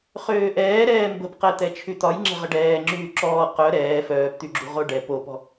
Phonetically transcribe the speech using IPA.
χ øː ʔ ɛː ɾ ɛː m b ə̤ p q ɛ t̪ ɛ t͡ʃʰ y t̪ ɒ j ŋ͡ǁ ɛ̤ ʁ ə ɖ ɛː ŋ͡ǁ yː ǁ ɔː q œ ɾ ɛː f œː p t̪ y ɡ͡ǁ ṳ ʁ o ɖ ɛ p o p ɔ̤

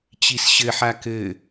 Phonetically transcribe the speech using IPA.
t͡ɕ i s ɕ ɘ ħ a k ɘ

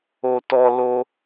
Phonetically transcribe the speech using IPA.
o˦ t ɔ˦ l o˦

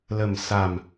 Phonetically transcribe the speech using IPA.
l ə˨˩ m s a˨˩ m

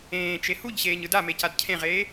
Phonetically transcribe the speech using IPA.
ẽː t͡ʃ e h u ʎ ɕ eː ɲ ɯ d a m e c a d cʰ ẽ ʁ eː

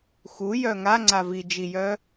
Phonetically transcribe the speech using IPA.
x u j œ ŋ a ŋ͡ǀ a v i d͡ʒ i j œ

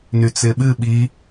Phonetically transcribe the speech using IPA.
n y t͡s ɪ ɓ ɨ ɓ i

